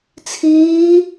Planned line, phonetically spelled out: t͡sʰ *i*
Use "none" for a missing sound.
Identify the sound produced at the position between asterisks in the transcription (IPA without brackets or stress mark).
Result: iː